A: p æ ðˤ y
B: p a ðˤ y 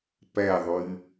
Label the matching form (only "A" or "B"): A